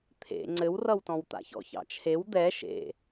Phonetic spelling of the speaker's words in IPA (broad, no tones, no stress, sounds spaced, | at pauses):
t̪ʰ ḛ ŋ͡ǀ ɘ w r ʌ w t ɔ̃ w t̪ a̰ ç ɔ̰ ç ɑ̰ t͡ʃʰ e w d̪ ɛ ʃ ḛ